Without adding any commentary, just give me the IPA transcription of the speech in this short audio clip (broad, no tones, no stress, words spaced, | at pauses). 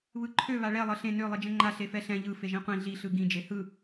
βɯǃʰø βaɭɛ lˠɤɬẽ nø lˠid͡ʒɛ̃ŋ͡ǃa ɬefɛɬɛ̃ ʎɯ feʒĩqʷĩ ɮi ɬɯɡĩ d͡ʒehɯ